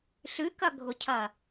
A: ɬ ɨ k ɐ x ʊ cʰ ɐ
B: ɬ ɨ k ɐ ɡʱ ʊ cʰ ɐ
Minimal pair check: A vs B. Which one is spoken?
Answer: B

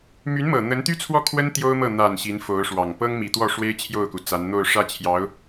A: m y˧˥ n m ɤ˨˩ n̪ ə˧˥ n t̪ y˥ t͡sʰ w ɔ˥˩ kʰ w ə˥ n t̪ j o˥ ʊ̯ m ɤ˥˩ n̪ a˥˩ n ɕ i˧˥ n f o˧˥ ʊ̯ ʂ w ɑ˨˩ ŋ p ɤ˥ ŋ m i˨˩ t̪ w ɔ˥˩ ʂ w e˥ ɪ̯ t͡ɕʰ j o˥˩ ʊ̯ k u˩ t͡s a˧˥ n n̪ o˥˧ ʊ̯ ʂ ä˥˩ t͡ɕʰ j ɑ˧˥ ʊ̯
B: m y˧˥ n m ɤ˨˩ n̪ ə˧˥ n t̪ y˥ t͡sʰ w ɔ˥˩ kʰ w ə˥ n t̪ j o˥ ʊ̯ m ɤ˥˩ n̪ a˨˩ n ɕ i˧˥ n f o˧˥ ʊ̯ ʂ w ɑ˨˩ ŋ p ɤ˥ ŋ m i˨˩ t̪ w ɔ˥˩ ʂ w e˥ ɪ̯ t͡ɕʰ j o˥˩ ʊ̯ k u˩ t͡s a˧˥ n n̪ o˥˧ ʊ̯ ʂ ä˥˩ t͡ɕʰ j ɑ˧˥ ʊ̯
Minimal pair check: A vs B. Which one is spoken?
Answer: B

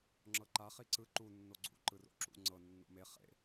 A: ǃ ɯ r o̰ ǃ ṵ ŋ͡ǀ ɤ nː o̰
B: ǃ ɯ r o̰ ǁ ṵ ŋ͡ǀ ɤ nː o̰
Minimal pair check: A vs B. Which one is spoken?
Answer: B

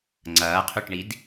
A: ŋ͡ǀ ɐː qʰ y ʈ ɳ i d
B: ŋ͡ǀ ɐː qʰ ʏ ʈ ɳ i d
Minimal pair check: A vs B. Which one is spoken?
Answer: A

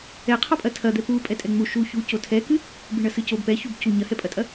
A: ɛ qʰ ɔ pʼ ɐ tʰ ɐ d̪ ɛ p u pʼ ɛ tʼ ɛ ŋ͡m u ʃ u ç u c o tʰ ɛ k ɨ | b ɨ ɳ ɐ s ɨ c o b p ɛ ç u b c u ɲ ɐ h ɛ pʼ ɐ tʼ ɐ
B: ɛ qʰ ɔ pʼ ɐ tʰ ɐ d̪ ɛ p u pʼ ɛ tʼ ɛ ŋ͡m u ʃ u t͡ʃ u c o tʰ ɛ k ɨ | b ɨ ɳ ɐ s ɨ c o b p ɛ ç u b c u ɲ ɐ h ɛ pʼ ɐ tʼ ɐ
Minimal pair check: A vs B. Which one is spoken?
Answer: A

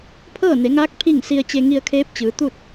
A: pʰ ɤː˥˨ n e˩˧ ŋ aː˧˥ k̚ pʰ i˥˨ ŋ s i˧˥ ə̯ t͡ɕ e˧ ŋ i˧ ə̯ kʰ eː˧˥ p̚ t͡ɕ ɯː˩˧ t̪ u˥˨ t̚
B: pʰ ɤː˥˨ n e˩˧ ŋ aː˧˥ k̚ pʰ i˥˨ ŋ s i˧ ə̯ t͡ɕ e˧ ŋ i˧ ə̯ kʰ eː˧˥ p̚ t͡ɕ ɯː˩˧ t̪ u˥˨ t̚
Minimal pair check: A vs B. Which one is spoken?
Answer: B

